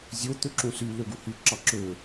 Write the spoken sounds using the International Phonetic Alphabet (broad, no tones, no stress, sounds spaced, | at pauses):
zʲ o t̪ ø ǁ ũ s y l ø ɡ u h y ǁ ɑ ǁ ø